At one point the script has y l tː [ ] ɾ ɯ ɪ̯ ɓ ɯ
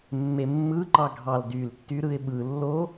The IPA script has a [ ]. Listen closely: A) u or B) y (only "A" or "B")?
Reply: B